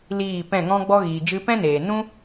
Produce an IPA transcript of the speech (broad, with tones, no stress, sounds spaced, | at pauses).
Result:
l iː˦˨ p ɛ̃˦˨ ŋ ɔ̃˦ ɡ͡b ɔ˦ ɣ iː˨ d͡ʒ ɨ˧ p ɛ̃˦ n eː˨ n ũ˦